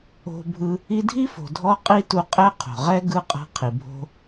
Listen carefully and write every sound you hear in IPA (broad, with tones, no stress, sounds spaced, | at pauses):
o̤˦ bʱ ɯ˦ | i˦ dʱ i˥ f o̤˨ dʱ ɔ˦ qʼ i˥ t u˦ qʼ ɛ˦ qʰ o̤˩ ʁ ɛ˥ ɡ ɯ˦ qʼ a̤˦ qʰ i˨ bʱ o̤˦